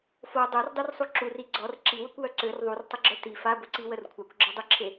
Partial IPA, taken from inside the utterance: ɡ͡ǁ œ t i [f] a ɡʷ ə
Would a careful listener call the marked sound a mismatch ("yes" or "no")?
no